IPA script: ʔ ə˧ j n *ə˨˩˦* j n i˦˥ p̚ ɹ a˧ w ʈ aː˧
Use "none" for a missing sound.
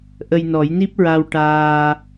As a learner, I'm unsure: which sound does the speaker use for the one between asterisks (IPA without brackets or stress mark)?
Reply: ɔ˨˩˦